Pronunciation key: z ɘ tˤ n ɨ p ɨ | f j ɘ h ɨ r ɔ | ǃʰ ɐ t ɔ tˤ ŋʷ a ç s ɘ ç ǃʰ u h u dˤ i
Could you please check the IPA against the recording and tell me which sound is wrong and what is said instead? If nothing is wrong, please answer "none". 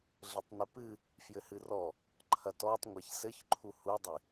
z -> ɮ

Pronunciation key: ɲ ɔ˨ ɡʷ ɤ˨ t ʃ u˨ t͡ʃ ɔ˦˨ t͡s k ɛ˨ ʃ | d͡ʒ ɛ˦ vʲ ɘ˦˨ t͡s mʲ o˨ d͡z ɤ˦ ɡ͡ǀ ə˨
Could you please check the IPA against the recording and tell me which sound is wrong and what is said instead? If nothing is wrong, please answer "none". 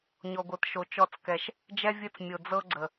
u˨ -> o˨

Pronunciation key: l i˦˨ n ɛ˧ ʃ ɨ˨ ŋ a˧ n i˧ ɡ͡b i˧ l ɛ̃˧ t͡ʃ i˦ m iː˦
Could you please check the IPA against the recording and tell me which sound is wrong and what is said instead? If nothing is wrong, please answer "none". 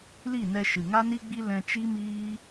none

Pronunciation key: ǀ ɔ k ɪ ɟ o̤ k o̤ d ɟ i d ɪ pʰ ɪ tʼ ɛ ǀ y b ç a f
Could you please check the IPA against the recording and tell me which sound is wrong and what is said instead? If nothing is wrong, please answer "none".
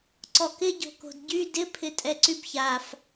i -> y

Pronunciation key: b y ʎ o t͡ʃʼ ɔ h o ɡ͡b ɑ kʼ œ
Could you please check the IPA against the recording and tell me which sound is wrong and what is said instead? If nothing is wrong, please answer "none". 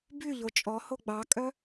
none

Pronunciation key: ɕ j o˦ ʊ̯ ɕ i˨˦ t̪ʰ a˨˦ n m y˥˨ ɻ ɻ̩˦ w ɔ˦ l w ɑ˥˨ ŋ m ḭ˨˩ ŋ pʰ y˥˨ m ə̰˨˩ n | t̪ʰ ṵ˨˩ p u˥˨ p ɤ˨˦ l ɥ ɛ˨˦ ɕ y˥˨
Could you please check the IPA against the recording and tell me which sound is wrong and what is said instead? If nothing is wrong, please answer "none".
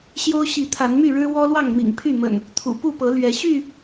none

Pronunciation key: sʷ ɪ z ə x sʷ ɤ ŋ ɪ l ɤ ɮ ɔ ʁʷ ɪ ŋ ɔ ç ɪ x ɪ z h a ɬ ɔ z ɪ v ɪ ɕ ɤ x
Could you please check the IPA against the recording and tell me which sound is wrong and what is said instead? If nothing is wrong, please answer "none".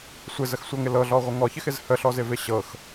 a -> ə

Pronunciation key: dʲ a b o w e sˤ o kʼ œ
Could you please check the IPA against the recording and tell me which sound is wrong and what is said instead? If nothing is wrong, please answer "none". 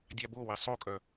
none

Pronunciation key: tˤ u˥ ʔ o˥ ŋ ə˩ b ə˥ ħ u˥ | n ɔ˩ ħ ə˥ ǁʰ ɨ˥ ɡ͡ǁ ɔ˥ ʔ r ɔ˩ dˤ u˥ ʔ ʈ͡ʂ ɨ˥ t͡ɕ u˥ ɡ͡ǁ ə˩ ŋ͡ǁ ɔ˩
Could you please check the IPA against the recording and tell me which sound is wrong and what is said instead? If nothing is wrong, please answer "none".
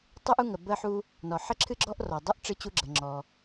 o˥ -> u˥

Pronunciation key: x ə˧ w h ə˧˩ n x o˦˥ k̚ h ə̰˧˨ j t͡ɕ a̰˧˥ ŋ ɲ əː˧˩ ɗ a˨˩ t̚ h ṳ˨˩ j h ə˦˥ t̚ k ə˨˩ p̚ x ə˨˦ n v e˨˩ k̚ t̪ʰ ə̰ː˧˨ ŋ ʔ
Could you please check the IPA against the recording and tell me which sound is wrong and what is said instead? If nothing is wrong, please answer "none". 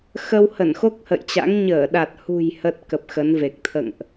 none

